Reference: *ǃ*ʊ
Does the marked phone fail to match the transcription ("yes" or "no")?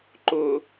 no